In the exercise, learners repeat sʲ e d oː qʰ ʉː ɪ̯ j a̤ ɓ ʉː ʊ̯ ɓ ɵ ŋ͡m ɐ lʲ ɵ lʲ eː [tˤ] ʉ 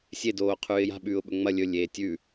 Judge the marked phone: incorrect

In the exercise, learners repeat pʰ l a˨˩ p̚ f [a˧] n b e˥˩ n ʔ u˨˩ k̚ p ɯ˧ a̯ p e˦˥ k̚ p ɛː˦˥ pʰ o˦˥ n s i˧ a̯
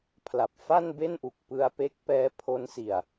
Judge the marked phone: incorrect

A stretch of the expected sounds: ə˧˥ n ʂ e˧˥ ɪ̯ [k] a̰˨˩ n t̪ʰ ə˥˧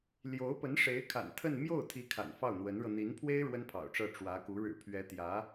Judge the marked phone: incorrect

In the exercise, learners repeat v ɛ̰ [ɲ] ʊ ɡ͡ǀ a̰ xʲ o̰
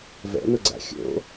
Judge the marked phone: incorrect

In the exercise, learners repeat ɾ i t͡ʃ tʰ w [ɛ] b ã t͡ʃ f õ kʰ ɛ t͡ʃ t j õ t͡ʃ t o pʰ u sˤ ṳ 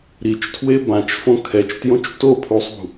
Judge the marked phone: incorrect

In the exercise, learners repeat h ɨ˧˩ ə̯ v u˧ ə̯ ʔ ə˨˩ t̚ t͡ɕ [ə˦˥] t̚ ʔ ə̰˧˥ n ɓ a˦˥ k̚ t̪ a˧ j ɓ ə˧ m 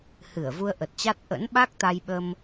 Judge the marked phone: incorrect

